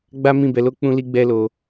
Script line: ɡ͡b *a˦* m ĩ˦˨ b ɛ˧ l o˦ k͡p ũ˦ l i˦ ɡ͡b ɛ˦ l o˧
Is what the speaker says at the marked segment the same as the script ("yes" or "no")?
yes